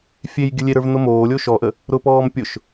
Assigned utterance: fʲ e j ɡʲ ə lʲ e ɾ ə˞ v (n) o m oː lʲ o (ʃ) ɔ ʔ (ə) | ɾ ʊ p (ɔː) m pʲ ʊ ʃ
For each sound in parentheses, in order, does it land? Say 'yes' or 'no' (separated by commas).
yes, yes, yes, yes